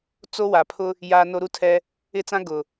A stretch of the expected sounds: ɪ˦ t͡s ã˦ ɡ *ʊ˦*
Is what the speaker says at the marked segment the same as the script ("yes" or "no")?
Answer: no